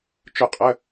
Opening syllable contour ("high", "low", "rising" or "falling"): falling